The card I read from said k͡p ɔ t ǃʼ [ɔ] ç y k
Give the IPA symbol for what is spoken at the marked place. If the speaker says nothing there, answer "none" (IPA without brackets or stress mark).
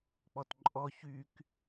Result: ɔ